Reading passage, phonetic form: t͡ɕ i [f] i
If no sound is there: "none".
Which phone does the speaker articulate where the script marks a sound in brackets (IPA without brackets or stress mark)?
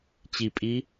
pʼ